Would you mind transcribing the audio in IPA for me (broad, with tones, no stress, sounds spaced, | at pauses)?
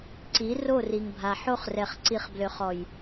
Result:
ǀ i˨˦ r o˦˨ r i˨ ŋ bʱ a˨ ħ o˦ χ r ɛ˨ χ ǀ i˨ χ b l ø˨ χ ɔ˨ j